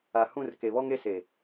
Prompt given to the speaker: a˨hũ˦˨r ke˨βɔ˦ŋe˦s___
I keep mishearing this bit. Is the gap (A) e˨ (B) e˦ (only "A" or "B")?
A